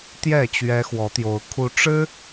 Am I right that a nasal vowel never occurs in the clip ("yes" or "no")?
yes